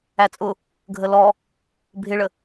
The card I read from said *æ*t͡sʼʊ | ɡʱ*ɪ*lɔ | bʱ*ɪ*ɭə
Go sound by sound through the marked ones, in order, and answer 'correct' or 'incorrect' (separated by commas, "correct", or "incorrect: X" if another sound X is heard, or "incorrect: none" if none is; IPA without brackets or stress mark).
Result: correct, incorrect: ə, correct